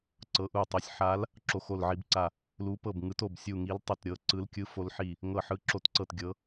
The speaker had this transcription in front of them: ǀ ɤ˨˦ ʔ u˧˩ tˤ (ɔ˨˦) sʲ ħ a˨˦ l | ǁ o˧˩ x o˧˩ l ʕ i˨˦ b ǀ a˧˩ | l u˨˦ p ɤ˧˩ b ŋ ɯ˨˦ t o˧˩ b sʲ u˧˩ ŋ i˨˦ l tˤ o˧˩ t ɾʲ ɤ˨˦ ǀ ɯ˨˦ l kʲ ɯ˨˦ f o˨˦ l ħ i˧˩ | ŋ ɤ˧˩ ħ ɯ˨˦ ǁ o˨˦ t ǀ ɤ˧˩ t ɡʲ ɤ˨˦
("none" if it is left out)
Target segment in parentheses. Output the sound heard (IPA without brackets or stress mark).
o˨˦